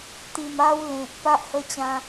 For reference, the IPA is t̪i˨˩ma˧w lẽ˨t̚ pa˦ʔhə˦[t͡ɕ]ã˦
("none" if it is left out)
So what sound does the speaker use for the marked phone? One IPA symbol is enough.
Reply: t͡ɕ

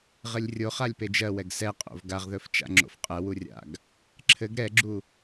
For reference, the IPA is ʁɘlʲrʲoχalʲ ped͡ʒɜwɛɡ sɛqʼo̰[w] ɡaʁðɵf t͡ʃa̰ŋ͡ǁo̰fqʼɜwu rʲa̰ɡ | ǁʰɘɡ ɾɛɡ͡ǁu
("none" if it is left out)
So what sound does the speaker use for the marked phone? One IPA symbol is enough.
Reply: v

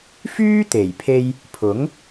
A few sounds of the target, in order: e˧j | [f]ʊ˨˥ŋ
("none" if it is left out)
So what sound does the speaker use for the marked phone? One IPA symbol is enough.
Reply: pʰ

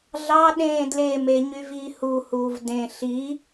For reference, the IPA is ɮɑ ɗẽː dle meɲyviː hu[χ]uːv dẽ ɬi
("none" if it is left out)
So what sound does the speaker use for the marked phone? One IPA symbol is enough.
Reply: h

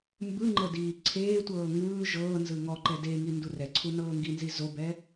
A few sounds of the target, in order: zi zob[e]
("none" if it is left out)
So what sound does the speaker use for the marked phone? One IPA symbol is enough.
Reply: ɛ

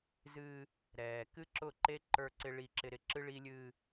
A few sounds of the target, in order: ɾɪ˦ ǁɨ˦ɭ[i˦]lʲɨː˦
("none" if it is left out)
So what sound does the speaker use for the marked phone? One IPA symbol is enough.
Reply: i˦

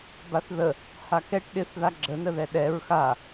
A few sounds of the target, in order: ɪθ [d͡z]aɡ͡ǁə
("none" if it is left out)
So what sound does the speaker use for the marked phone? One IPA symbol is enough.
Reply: ð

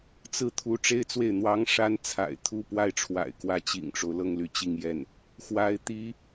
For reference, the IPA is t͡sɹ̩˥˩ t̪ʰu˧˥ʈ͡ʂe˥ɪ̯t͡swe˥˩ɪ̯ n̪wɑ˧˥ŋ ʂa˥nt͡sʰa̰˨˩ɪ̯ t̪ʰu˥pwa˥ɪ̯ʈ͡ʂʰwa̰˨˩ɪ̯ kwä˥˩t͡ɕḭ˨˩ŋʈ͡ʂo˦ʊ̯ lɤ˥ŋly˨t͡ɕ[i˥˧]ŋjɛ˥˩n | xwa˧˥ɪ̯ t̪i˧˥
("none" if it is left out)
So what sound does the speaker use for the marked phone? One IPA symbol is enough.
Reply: i˥˧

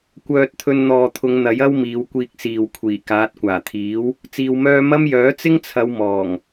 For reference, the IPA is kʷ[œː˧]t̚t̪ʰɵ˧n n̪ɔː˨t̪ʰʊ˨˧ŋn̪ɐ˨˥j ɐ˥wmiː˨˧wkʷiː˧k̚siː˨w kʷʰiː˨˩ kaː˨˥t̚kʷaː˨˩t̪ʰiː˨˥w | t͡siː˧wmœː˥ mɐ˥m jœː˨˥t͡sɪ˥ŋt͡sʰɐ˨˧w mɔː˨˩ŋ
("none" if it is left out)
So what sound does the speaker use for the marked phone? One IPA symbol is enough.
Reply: œː˧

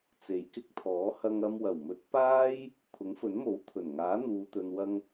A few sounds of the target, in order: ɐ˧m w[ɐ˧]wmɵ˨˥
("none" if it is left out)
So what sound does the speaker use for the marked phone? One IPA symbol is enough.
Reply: ɐ˨˩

